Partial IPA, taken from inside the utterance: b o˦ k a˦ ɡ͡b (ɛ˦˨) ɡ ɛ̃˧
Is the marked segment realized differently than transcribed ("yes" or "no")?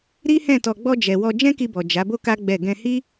no